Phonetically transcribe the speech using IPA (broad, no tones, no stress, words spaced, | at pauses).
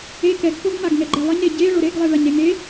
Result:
e kɛɡkoɡmaɡ ŋɛɡ͡ǃɛlˠɘɲɾe ɟeɭo ɾeɡlˠe ɭaɲɾeŋe